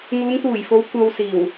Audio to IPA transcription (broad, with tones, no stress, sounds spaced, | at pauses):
ŋ uː˨˧ ŋ t̪ uː˨˩ j f o˨˧ w kʷ ɐ˨ w s iː˨˩ w